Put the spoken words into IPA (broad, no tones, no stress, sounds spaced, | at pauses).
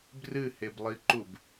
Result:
b r ɨ h e b lˠ i ǃ u b